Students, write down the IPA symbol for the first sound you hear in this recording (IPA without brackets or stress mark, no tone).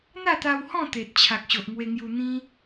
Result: n̪